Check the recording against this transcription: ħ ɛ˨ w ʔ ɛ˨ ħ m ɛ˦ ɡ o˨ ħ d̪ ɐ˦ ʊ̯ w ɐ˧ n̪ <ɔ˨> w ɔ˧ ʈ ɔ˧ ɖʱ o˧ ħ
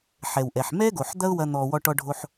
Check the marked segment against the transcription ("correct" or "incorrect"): correct